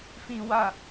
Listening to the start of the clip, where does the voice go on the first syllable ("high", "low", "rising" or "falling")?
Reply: low